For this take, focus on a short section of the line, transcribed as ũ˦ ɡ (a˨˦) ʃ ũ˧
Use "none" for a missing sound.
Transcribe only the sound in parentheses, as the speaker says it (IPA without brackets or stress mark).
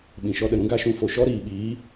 a˦